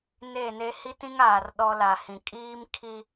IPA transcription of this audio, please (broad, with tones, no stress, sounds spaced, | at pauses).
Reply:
n e˦˨ n e˦ h i˦ t ĩ˦ ŋ aː˨ r ɗ ɔ˦ l a˨ h ĩ˨ kʼ iː˦ m kʰ i˦